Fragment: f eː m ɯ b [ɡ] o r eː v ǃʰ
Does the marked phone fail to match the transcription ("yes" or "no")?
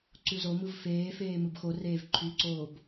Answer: yes